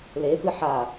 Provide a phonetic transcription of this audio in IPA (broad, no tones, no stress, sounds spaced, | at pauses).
l e p ɨ ħ a